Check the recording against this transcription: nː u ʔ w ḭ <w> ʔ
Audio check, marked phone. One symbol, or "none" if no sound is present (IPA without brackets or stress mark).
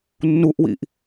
none